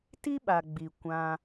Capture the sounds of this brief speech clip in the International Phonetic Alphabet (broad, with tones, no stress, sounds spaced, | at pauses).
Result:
t i˦ ɓ a˨ ɡ͡b i˨ kʷ ã˧